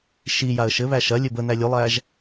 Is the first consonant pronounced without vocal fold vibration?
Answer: yes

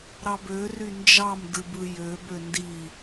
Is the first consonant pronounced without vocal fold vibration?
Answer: no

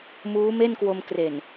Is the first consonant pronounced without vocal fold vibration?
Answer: no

